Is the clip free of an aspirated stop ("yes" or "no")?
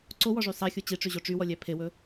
no